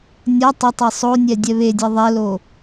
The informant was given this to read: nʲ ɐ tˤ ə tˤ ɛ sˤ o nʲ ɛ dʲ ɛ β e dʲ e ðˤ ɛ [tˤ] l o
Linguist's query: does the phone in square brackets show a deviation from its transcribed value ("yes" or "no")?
yes